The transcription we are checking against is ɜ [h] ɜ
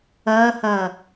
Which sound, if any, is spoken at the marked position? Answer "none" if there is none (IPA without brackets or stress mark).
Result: h